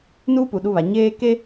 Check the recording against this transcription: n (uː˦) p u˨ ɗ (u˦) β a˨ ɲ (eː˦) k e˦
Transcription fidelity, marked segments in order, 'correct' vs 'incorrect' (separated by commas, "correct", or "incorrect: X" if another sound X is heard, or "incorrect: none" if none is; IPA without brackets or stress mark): correct, correct, correct